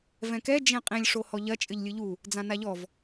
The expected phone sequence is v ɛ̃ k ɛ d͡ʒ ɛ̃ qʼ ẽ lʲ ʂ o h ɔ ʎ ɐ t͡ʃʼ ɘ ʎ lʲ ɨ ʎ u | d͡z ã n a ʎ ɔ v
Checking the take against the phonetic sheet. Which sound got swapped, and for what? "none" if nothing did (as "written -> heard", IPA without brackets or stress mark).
none